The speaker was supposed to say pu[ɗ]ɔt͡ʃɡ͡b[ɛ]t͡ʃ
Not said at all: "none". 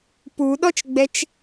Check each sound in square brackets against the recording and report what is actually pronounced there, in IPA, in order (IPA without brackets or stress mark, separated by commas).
ɗ, ɛ